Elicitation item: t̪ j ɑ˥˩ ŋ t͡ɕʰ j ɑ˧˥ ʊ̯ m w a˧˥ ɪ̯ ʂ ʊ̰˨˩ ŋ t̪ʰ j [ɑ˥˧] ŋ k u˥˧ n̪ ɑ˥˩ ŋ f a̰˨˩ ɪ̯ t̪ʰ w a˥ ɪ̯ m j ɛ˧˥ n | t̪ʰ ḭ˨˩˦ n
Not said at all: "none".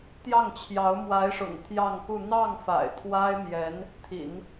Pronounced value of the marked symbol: ɑ˥˧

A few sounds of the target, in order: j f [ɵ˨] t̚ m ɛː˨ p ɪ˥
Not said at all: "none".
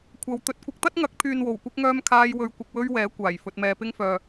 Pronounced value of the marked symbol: ɵ˨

